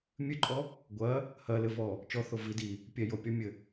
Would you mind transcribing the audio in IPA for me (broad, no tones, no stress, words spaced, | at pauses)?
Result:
mʲɨǃʼɔ | ɡʷɐ | hɐlɘvɔ | t͡ʃɔθo vi di | pʲɛ jopʲɔmʲɘ